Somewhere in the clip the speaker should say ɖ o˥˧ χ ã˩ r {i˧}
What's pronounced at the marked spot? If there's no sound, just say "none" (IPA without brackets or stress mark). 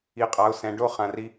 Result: i˧